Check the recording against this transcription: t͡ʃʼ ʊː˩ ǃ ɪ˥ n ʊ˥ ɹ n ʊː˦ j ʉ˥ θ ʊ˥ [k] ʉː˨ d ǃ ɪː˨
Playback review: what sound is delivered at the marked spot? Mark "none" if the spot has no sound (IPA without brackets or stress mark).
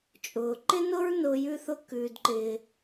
k